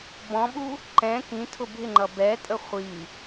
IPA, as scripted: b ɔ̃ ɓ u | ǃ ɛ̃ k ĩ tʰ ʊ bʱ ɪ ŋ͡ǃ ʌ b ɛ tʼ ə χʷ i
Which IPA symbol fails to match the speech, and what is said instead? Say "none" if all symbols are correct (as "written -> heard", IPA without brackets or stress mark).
none